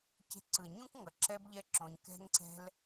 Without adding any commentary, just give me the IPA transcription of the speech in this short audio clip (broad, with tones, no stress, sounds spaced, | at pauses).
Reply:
c e̤˧ ǀ ɯ˨ ə̯ ɲ ũ˦ k ŋ ʌ˨ ǁ ɛ˦ b ʎ ɛ˦ ǁ õ˧ ɲ k ɛ̤˦ ŋ ǀ ɛ̤˦ l